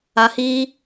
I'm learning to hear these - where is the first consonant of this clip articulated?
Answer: throat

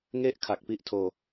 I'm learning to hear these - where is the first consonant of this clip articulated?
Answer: velum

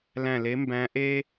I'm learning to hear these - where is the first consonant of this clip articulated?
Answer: tongue tip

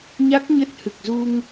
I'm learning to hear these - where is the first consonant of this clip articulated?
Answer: palate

